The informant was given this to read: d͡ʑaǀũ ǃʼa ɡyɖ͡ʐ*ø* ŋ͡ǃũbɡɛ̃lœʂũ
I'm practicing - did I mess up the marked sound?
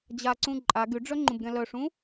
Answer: yes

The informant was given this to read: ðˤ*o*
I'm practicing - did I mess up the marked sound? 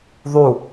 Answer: yes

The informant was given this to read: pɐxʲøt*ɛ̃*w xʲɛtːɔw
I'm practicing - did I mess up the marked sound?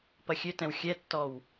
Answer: no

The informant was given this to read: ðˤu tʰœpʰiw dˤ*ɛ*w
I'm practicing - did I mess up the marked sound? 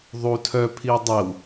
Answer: no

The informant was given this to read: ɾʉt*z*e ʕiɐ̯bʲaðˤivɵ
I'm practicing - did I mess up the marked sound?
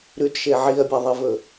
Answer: yes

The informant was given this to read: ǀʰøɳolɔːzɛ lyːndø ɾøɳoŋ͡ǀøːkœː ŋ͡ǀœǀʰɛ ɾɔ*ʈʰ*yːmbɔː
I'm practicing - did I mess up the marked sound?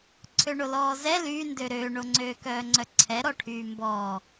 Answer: no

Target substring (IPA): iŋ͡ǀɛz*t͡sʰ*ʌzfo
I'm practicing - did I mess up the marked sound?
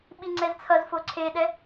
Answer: no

